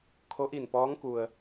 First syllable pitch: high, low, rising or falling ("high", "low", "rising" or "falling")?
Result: rising